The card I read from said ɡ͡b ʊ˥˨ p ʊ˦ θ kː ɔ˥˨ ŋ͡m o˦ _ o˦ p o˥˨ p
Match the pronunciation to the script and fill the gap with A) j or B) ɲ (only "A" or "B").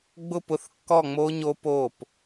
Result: B